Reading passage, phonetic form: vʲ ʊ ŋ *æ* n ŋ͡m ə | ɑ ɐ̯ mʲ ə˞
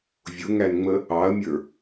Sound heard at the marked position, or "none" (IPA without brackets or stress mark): æ